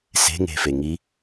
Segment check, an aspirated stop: absent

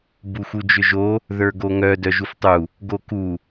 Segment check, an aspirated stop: absent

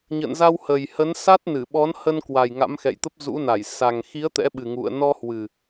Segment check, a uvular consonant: absent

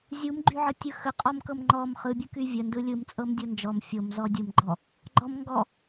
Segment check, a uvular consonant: present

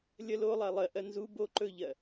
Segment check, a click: present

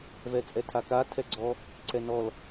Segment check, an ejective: present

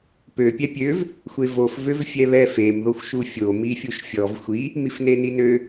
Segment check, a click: absent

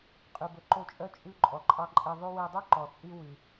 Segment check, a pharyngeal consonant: absent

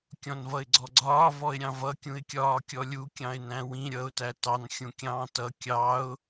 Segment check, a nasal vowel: present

